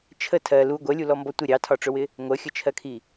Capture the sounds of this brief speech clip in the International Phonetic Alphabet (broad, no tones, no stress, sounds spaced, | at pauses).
t͡ʃʰ ə tʰ ɜ l u ɡʷ ɜ lʲ u l ɔ m b ɔ tʷ ɪ ɾʲ ɑ tʰ ɒ ʈ͡ʂ ʊ w ɪ | ŋʷ ɜ xʲ ə t͡ʃʰ ɜ kʰ i